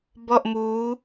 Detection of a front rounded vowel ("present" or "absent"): absent